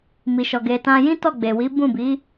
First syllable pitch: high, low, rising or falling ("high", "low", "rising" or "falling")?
low